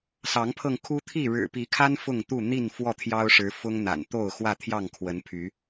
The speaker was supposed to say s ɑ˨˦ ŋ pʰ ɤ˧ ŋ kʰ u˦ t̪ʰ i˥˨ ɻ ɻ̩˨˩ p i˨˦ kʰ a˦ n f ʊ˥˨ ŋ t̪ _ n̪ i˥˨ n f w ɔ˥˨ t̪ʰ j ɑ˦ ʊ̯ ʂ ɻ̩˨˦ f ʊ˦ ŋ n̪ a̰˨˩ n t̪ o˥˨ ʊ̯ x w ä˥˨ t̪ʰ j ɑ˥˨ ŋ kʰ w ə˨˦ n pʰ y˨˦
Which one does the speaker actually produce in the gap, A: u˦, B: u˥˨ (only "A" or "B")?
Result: B